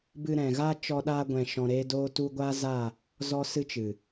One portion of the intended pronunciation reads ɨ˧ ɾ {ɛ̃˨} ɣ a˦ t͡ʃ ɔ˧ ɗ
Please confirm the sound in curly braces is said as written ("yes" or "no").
yes